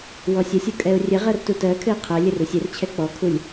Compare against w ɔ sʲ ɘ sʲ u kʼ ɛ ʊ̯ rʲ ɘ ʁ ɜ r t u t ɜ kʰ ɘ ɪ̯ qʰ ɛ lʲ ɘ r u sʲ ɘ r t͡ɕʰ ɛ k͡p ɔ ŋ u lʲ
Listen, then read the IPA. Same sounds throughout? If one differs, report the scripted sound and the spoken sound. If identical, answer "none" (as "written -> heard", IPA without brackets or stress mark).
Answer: ŋ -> kʰ